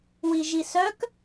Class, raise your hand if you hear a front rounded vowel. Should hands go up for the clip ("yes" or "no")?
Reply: yes